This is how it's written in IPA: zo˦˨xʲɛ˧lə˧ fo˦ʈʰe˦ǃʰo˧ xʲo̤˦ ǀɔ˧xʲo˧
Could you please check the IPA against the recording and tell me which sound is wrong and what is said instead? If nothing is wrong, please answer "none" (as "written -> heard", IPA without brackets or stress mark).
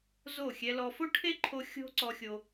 ə˧ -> ɔ˧